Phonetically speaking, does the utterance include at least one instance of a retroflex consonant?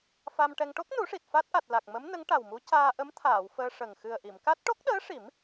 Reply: yes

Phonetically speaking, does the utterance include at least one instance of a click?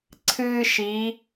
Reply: yes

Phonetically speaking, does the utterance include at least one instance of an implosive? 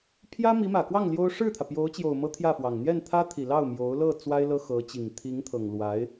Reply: no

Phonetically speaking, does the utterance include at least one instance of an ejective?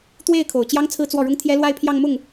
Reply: no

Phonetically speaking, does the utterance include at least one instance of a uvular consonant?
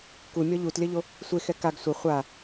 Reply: yes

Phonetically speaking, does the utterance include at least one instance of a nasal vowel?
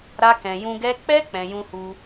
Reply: yes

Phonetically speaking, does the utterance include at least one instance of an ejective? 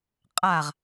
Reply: yes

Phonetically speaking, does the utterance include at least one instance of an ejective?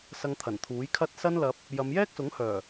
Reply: no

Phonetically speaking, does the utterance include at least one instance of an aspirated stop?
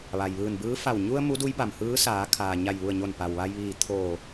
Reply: yes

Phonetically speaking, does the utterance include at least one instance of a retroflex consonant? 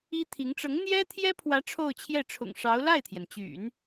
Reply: yes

